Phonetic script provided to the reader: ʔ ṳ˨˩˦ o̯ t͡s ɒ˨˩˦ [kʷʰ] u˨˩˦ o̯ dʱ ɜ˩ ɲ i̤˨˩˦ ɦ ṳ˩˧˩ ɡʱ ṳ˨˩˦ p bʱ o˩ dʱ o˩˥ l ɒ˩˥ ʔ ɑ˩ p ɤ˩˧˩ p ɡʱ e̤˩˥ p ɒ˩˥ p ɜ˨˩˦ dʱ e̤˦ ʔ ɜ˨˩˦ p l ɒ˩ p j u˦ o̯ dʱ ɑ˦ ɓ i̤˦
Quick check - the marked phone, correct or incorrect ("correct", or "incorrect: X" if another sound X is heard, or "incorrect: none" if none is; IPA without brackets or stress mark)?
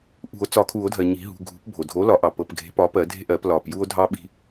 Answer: incorrect: kʰ